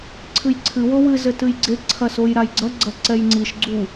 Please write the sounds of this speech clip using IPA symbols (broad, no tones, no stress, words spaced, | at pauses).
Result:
ǀʰɨjǀʰɨ wowɨ zɘtɨjɡ͡ǀe ǀʰɐsojɾajɡ͡ǀɐ ɡ͡ǀɐǀɛjŋ͡ǀiʃ ɡ͡ǀu